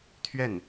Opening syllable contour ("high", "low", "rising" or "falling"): falling